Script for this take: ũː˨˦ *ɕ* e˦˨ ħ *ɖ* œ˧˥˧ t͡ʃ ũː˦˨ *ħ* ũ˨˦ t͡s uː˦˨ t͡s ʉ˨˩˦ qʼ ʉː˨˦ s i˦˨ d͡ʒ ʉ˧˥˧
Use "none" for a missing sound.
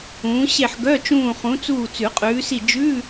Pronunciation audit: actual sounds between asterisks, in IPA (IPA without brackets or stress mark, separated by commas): ɕ, ɡ, χ